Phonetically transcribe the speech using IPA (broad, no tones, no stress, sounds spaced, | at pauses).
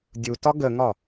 dʲ u t ɒ ɡ ə ŋ ɒ